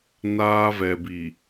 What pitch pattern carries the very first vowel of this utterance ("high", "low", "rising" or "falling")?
high